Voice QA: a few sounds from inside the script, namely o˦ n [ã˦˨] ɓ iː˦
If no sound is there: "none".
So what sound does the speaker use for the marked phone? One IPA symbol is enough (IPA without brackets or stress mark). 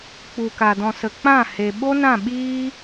ã˦˨